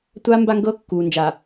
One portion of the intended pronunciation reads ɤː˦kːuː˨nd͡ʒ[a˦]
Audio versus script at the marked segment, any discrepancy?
yes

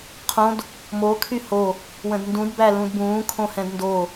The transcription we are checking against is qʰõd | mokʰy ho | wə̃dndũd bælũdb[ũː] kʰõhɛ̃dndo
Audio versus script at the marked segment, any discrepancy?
no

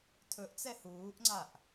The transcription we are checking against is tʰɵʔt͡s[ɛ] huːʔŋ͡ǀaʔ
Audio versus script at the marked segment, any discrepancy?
no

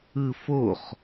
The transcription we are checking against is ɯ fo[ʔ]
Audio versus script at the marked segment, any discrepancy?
yes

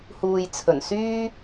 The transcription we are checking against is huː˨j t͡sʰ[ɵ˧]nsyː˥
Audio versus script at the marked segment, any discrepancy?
yes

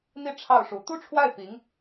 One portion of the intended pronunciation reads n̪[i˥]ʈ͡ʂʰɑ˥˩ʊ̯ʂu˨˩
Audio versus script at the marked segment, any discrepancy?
no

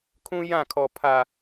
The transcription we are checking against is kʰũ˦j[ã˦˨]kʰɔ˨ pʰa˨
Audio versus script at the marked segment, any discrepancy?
no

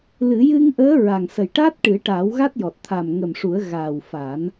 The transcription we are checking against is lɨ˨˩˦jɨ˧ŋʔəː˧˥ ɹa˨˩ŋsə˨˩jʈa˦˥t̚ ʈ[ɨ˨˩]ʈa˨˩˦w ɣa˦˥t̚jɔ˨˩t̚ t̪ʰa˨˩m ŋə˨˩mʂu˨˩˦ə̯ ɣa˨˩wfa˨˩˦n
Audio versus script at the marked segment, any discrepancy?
yes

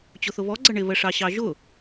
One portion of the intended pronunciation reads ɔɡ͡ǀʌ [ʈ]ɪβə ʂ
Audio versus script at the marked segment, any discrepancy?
yes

